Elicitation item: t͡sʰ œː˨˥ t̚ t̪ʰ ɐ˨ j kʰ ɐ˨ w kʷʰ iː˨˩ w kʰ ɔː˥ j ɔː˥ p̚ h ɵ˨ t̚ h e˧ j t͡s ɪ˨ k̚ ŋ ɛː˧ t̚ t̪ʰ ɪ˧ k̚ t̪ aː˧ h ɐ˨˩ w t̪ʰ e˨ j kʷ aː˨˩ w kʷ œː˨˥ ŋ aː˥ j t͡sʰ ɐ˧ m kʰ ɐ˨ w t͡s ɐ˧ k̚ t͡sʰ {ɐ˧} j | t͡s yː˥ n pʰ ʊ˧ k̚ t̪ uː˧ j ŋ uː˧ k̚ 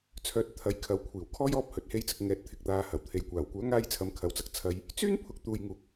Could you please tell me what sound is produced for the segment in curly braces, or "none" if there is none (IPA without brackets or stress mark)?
ɐ˧